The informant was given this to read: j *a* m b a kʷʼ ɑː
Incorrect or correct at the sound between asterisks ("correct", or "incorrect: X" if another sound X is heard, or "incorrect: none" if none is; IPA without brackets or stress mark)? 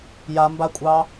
correct